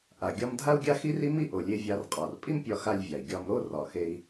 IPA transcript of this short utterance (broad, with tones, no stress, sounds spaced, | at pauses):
ʔ a˩ ɡʲ ɒ˧ m dʱ a˥ u̯ ɡʲ a˥ x i˥ r i˥ m i˥ ʔ o˩ lʲ e˧ vʲ a˧ r qʼ ɒ˩ r pʼ i˥ m pʲ ɒ˧ x a˧ lʲ vʲ a˩ i̯ ɡʲ ɒ˧ m ɾ o˥ r ɒ˩ x e˧ i̯